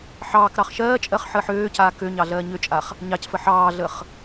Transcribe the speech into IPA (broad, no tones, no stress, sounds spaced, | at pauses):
ħ ɑː k ɾ ɑ χ ʃ ɜː t͡ʃʼ ɜ χ ħ əː ħ øː c aː k ø ɲ ɑ ɮ ɜː ɲ ø t͡ʃʼ a χ | ɲ ɑ c f ə ħ ɑː ɮ ə χ